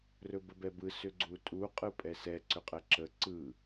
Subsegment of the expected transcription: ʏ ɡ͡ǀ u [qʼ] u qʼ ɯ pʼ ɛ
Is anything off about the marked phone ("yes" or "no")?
yes